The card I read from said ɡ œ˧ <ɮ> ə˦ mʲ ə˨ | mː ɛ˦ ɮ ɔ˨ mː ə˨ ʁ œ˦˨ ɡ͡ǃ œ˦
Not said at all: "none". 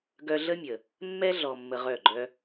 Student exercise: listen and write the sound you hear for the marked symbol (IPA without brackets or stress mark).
ɮ